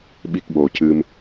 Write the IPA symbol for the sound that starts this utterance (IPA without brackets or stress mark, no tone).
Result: ɓ